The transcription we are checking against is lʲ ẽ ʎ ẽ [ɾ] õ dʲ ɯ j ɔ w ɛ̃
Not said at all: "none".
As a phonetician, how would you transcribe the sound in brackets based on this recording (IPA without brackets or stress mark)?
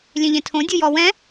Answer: tʰ